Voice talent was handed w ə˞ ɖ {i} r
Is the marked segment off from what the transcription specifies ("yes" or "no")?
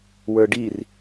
no